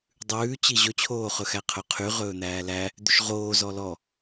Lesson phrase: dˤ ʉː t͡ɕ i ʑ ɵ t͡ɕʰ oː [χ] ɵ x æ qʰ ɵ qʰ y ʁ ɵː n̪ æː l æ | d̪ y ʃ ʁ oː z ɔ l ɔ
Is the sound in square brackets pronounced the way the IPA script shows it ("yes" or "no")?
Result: yes